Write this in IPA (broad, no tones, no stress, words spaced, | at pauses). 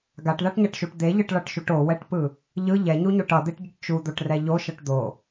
ɡaʈðaʈɲaʈʃuʈ d̪eʎɯʈɭʌʈʃuʈ owɛʈpɯ | ʎɯ ʎɛɲuɲoʈ ʌd̪eʈɟɯʈ t͡ʃud̪oʈrɛ ʎoʃʌʈ d̪o